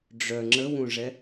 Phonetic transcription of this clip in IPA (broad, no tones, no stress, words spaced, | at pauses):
ɖ͡ʐœ ŋ͡ǁəwũʐɛ